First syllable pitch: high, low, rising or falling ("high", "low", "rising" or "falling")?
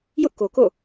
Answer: high